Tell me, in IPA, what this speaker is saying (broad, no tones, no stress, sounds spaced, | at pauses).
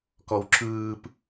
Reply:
k ɔ w ǁ ɯː p